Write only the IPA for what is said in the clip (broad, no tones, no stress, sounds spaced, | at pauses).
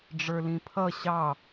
ɖ͡ʐ ə˞ l ĩ pʰ ʌ ɕ ɑ